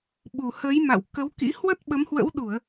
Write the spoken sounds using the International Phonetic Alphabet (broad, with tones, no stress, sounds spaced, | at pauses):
ɓ u˨˩ h ə˨˦ j m a̰˧˨ w k ə˨˦ w k ḭ˧˥ h w ə˦˥ t̚ ɓ ə˨˦ m h w ə̰˧˥ w ɗ u˧˩˨ ə̯